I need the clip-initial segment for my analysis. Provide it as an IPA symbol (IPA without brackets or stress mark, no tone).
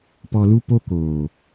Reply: p